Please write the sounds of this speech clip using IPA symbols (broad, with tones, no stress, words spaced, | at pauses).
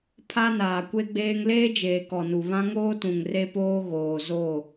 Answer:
pʰa˦naː˨kʷe˦ɡ͡beː˦ŋ leː˦d͡ʒeː˨ kɔ˨nu˨βã˦ŋoː˦ tũ˨ŋre˦poː˦ ɣoː˨zo˦˨